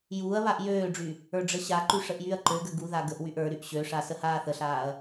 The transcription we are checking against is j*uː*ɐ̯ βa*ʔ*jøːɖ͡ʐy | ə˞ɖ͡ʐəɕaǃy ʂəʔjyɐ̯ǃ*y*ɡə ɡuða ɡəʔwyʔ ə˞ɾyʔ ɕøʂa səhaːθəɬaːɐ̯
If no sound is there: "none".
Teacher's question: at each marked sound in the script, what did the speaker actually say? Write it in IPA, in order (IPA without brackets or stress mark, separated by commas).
uː, ʔ, ø